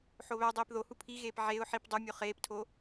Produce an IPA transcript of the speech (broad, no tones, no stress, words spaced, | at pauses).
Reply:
ħoβædˤiːp ðohu pʰiɣeːp ʕeʊ̯ ħip dˤumʲo χeːptʰo